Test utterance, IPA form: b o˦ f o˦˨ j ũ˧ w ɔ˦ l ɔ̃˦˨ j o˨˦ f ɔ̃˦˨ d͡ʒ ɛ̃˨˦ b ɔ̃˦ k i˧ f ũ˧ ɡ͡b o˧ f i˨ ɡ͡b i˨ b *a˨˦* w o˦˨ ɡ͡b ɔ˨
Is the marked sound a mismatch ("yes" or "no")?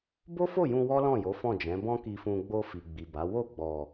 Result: no